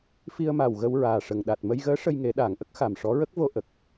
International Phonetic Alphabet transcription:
f i˧ ə̯ m a˨˩ w ɣ ə˧ w ɹ aː˨˩ ʂ ə˨˩ ŋ ɗ a˨˩ t̚ m ə˧ j ɣ əː˧˥ ʂ ə˧ j ŋ e˨˩˦ ɗ aː˨˩˨ ŋ ʔ ə˦˥ k̚ x a˨˩ m ʂ ɔ˧˥ ɹ ə˦˥ k̚ v o˧ ʔ ə˨˩ k̚

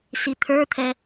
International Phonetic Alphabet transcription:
s i t̪ʰ ə˞ t̪ʰ ɛ

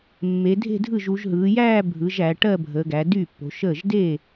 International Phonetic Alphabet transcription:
mː e˩˧ dʱ e̤˥˧ dʱ ɯ˥˩ ʒ u˩˧ ʒ ɦ ɯː˩˧ j æː˥˧ bʱ ɯ˩˧ ʒ æ˩˧ ʈ ɜ˥˧ bʱ əː˩˧ ɡ æ˩˧ d yː˥˩ pː o̤˩˧ ʃ əː˥˩ ʒ d eː˥˩

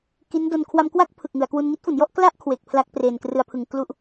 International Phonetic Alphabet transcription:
k i˦˥ n d o˧ n kʰ w a˧ m k w a˥˩ k̚ pʰ ɯ˨˩ k̚ ŋ ɯ˩˦ a̯ k w u˧ n ŋ i˦˥ t̚ f u˩˦ n j ɔ˥˩ ʔ k l a˥˩ ʔ kʰ w e˨˩ k̚ pʰ l a˦˥ k̚ p r e˨˩ n k r ɯ˧ a̯ pʰ ɯ˨˩ ŋ k l u˥˩ ʔ

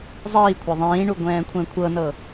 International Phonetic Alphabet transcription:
zˤ iː kʷʰ a ðˤ ĩː ɳ u ɡʷ ɛ̃ː kʷʰ ɛ̃ kʷʰ ɤ n ɤ

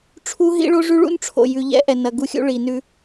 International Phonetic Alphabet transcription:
ʈ͡ʂʰ u˦ ɦ ḭ˦ ɭ o˦ ʐ ʉ˦ ɭ ṵ˦ n ʈ͡ʂʰ o̰˨ j ʉ˨ ʎ ɛ̰˦ ʔ ɛ˨ n ɐ˨ ɡ u˦ xʲ ṵ˦ ɭ i˨ n ʉ˦

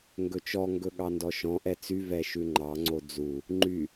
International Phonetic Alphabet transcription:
ŋ ɡ ɵ t͡ʃ ɔ ŋ ɡ ɵ ɠ ɑ n d ɔ ʃ ɔ̃ ʔ ɛ t͡s y v ɛ ʃ ʉ ŋ͡ǃ ɑ ŋ͡ǀ o d͡z u | ŋ͡ǃ y

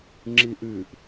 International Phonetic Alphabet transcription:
ŋ͡ǁ i ʔ ʉ ʔ

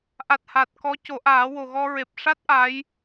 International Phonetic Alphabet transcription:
ʔ a˨˩ t̚ h a˨˩ t̚ k ɔ˧˥ c o˨˩˦ ʔ aː˨˩˦ w o˨˩ ɣ ɔ˧ ɹ e˨˩ p̚ ʂ a˦˥ t̚ ʔ a˧˥ j

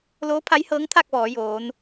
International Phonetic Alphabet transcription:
l oː˧˥ pʰ a˧˥ j h ɤː˧˥ ŋ t̪ʰ aː˥˨ k̚ ʋ ɔː˩˧ j oː˩˧ n

